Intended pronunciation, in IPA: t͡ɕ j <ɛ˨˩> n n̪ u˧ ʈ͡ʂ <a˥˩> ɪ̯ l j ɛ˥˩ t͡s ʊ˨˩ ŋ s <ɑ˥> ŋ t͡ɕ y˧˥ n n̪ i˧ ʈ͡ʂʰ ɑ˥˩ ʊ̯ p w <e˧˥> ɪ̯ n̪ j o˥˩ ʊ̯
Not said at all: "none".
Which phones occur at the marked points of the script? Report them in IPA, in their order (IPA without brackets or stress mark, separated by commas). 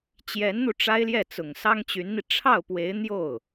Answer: ɛ˧˥, a˥, ɑ˥, e˧˥